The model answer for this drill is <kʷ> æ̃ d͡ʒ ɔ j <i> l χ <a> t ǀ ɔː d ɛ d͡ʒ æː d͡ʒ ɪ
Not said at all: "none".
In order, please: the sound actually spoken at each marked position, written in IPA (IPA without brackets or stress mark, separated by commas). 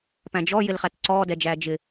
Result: p, ɪ, æ